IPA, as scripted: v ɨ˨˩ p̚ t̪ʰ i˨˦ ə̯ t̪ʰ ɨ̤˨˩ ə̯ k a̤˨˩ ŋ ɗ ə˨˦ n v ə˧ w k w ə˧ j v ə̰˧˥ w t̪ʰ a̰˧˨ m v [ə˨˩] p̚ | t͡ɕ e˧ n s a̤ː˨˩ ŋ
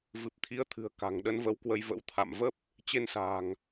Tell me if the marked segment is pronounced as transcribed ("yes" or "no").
no